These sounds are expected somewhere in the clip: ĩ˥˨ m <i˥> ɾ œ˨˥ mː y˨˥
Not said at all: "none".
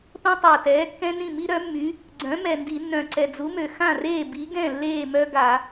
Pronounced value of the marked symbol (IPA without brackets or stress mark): i˥